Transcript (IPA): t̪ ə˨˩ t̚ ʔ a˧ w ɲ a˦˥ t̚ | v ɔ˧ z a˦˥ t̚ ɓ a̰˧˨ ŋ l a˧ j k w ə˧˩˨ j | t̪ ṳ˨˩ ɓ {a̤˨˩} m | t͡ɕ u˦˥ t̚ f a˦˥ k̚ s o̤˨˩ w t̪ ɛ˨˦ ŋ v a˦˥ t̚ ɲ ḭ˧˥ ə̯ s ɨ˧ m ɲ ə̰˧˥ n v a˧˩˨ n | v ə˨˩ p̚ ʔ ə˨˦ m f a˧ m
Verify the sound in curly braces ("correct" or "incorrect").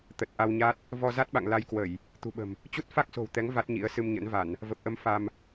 incorrect